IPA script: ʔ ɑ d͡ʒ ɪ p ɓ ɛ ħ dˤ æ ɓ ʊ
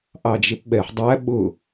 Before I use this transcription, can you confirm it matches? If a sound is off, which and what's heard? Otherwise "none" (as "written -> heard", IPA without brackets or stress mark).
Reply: none